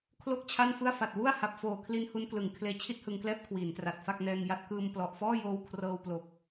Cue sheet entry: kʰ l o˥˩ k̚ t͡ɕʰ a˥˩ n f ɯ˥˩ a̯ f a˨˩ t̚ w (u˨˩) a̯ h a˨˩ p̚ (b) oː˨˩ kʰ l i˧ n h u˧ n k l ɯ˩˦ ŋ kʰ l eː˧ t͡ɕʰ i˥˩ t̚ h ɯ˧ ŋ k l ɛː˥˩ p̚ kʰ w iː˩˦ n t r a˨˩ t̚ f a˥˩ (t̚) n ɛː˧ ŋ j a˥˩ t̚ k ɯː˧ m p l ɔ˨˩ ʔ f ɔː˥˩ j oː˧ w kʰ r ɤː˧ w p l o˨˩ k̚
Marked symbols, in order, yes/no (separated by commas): no, no, no